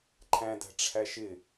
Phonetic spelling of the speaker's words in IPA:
ǃʰæ̃dæ̤ ʈ͡ʂʰæʃɪ

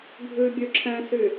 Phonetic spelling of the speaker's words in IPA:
ɡʱʉ bʲʉǁʰɛ̃sy

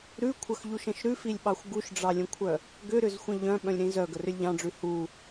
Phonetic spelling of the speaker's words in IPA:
ɾʉkʷʰəxʎuʃə̃ʃ ɾʉfilʲɓɑxʷ ɡuʃɖ͡ʐɑlʲə̃kʷʰœ | ɡʏɾʏzxʷə̃ ʎœ̃ɓœ̃lʲɾĩ zœɡərʏlʲ ʎɑ̃ɖ͡ʐʉ hu

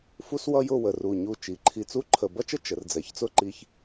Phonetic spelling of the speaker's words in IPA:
fu˥swʌ˥jʊ˥˧ wə˧˩r u˧˩ ɲu˧˩ t͡ʃi˩˧ǃʰi˧˩t͡su˥ǃʰə˧˩ bʌ˥t͡ʃə˥ t͡ʃə˩˧r d͡zɛ˩˧çt͡sʊ˥˧ǃi˧ç

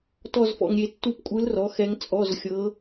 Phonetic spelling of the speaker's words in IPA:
tɔ˥˧zfɔ̰˧ŋ ɾʲe˧tːu˥˧pkʷʼɯ˧˥lrɔ˩˥ xɛ˧˥ŋt͡sʼɔ˧˥˧zxʲɤ˧˥

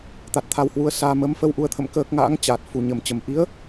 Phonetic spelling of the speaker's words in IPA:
t̪a˨˩t̚t̪ʰa˧whwu˨˦ə̯saː˧ mə˨˦m fə˧wʔu˨˦ə̯t̪ʰə̰˧˨m kəː˦˥k̚ ŋa̰ː˧˥ŋ t͡ɕaː˨˩t̚ fu˨˩ɲə˨˩mt͡ɕə˨˩m ʔi˨˦ə̯

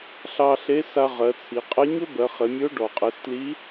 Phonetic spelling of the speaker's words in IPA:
ɬɑ˧ɬe˧˥sa˧ ʁɜ˩˧t͡sʰi˩˧qʼɘ˧˥ ɲɵ˥bɜ˩˧χɘ˩˧mʲɵ˧˥o̯ ɖɔ˩qʼɘ˩˧stli˧˥

